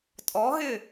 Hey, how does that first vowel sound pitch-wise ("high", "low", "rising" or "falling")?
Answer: rising